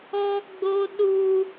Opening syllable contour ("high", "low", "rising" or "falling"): high